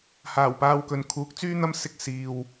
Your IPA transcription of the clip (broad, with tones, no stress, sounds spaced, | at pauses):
h aː˨˩ w p aː˧ w k ɵ˨ n kʰ uː˨˥ k̚ t͡s yː˥ n̪ ɐ˥ m s ɪ˧ k̚ s iː˨ w